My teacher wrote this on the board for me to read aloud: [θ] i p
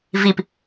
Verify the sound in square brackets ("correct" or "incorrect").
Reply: incorrect